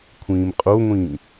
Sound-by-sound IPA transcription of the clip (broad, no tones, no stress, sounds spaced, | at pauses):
kʷʰ ĩː m qʼ o ŋʷ ĩː